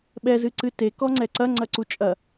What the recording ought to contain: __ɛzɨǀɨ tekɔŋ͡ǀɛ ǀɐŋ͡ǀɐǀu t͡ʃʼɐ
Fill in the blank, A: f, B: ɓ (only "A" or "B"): B